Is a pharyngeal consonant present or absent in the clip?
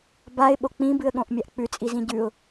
absent